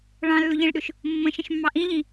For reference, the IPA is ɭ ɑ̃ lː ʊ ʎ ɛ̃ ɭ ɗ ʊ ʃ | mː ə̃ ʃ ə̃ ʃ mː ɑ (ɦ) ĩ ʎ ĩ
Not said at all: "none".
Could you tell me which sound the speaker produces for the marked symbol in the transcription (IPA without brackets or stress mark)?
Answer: ʔ